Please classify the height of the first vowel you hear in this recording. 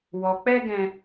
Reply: mid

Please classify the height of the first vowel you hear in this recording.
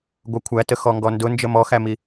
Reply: mid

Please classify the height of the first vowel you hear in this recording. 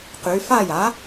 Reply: high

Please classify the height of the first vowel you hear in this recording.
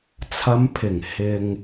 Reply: low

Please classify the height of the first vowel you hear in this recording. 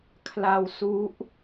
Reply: low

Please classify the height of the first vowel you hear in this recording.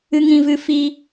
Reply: high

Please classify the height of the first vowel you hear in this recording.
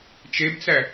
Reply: mid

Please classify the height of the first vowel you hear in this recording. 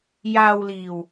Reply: low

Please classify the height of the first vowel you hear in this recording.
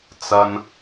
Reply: low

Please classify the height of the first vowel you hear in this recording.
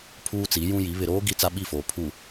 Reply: high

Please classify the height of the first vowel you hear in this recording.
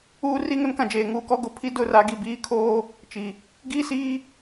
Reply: high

